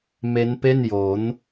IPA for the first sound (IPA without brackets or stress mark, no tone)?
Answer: m